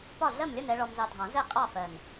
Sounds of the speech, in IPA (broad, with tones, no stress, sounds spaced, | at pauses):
p ɒ˥˨ ɮ ɜ˥˨ m lʲ ʌ˥˨ n ɛ˧ ɭ ɔ˧ m z ɑ˧ dʱ ɑ̃˨˩˦ z ɛ˥˨ qʼ ɑ˥˨ f ɜ˨˩ n